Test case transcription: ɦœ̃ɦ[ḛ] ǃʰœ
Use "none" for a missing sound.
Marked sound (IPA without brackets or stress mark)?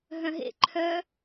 ḛ